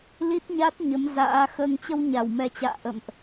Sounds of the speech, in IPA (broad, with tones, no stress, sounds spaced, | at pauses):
l i˦˥ t̚ ɲ a˦˥ t̚ ɲ ə˨˦ m z a̰ː˧˥ x əː˧ ŋ t͡ɕ ə˧ w ɲ a˧˩ w m ɛ˨˩ t͡ɕ a̰ː˧˨ ʔ ə̰˧˨ m ʔ